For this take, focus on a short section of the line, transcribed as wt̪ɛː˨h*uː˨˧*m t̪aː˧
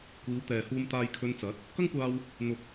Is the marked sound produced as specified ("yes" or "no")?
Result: no